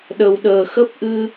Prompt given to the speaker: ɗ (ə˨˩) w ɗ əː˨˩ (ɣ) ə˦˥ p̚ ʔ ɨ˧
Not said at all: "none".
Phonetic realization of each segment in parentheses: ə˨˩, x

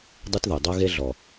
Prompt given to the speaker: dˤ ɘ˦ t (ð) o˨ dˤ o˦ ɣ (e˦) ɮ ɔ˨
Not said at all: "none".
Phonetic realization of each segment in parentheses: ð, e˦

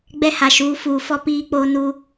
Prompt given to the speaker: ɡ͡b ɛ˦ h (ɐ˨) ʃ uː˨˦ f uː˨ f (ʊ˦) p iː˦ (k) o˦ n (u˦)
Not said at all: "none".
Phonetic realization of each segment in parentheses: a˨, ɔ˦, k͡p, u˦

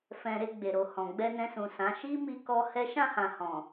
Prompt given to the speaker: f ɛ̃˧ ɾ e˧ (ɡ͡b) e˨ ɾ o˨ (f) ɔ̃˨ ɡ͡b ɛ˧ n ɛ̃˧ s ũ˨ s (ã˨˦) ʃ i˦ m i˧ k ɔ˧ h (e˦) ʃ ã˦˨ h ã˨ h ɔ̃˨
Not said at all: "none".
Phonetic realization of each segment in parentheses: ɡ͡b, h, ã˨˦, ɛ˦

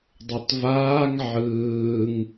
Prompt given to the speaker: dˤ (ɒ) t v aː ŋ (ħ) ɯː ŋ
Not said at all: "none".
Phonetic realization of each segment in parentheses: ʌ, ʕ

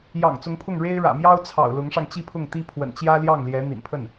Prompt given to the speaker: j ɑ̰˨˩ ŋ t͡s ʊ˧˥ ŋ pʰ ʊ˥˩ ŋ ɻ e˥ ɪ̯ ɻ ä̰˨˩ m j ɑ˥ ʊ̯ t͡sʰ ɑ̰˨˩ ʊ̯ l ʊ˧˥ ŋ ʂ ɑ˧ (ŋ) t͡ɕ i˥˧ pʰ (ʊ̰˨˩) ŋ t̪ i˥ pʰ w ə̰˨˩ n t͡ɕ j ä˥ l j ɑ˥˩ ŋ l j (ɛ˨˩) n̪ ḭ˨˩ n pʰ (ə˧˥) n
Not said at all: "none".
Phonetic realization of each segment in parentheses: ŋ, ʊ˥˩, ɛ˧˥, ə˥˩

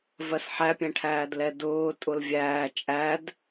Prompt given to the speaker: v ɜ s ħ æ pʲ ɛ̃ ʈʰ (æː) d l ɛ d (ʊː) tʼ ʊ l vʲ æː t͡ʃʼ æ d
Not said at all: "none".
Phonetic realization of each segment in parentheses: æː, ʊː

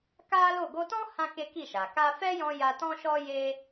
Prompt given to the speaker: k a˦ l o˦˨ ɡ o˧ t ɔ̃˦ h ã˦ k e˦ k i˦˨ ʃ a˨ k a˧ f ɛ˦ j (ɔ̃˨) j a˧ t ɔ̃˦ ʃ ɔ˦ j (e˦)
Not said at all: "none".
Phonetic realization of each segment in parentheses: ɔ̃˧, e˦

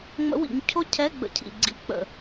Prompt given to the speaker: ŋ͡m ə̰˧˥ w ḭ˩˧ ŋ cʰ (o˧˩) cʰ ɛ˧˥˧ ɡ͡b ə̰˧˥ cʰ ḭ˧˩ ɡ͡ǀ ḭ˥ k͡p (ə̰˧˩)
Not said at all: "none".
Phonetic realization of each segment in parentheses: o˥, ə̰˧˩

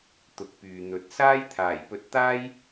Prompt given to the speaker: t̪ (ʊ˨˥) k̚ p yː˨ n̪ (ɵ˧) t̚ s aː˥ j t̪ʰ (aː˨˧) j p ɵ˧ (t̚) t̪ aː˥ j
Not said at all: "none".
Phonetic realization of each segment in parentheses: ʊ˨˥, ɵ˨˥, aː˨˩, t̚

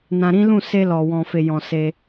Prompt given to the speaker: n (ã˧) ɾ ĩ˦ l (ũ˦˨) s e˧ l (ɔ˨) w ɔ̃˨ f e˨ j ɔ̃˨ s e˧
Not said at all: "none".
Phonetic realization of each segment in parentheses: ã˧, ũ˦˨, ɔ˨

